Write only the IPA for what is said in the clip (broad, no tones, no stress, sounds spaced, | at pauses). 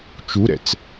t͡ʃ u ɾ ɛ̰ t͡s